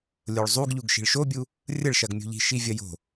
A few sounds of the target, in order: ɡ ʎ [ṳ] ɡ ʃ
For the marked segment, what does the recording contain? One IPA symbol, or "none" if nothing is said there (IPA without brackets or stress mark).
u